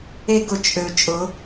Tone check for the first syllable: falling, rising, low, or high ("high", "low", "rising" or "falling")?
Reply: high